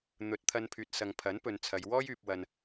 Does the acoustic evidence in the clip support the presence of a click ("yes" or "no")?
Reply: no